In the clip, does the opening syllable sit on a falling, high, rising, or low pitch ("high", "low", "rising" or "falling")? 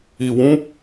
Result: low